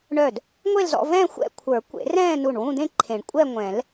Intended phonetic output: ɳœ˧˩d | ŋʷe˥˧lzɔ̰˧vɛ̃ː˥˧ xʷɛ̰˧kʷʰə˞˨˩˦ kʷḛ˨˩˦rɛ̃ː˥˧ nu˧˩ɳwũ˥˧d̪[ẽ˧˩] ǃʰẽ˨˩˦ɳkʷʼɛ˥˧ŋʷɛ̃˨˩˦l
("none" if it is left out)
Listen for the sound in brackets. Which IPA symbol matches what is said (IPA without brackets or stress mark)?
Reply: ẽ˥˧